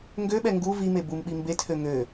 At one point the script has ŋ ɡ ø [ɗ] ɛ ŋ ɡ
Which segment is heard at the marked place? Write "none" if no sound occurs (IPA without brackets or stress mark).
ɓ